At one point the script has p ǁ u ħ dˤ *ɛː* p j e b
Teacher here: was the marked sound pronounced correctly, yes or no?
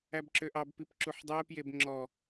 yes